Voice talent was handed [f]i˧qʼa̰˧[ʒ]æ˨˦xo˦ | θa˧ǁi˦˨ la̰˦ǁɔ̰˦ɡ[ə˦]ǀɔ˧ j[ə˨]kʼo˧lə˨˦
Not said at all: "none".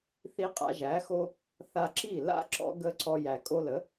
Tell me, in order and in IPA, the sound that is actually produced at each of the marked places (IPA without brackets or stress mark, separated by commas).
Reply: θ, ʒ, ə˧, æ˨